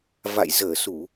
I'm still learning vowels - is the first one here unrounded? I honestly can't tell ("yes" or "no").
yes